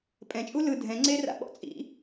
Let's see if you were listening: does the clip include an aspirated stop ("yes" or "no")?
no